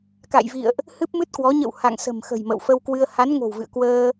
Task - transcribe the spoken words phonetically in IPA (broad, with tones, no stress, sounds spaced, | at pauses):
k a̰˧˨ j v ḭ˧˨ ə̯ ʔ | h ɨ˦˥ p̚ m ɨ˦˥ t̚ k w ɔ˨˦ ɲ ə̰˧˨ w h a̰˧˨ ŋ s ə̤˨˩ m x ə̤˨˩ j m ə̰˧˨ w f ə˧ w k w ɨ˧ ə̯ h a˨˦ n ŋ o̤˨˩ w v ɨ̰˧˨ ə̯ k w əː˧